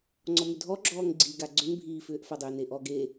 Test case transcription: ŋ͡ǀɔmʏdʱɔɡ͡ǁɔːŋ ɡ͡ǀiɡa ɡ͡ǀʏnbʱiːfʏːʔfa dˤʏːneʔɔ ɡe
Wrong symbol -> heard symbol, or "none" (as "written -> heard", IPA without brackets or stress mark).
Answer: none